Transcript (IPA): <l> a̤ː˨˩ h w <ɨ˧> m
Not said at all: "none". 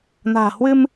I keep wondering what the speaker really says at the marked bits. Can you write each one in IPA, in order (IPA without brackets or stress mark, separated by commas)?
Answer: n, ɨ˧